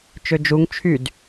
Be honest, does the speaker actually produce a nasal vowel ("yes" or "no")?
no